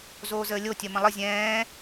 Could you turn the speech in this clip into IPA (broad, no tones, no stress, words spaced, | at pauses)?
zoːzəːlʲotʲɜ mə̃lˠə zʲɛ̃ː